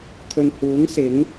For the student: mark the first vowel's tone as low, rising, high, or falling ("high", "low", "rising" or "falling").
low